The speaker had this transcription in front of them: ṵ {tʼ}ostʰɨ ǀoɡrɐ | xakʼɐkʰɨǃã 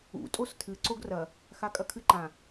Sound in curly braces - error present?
no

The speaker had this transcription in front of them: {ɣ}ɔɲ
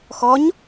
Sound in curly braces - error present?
yes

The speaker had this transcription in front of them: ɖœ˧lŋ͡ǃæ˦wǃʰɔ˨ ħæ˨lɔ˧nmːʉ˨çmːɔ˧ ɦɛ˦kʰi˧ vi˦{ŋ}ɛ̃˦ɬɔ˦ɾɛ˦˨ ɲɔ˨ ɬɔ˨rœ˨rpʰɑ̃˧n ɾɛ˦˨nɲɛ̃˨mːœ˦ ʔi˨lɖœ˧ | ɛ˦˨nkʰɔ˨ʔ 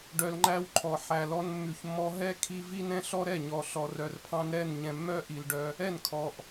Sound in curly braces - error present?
yes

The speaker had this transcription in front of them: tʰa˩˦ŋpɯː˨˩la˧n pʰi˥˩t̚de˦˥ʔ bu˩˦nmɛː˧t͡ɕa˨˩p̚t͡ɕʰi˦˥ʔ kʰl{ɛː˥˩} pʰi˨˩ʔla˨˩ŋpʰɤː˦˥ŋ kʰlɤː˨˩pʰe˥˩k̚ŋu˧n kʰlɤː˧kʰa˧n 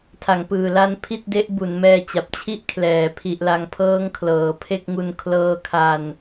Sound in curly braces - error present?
yes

